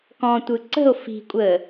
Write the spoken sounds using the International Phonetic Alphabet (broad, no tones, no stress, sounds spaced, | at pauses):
k ɔ̃ tʷ ɯ ǀ ə̤ o̯ f i̤ kʷʼ əː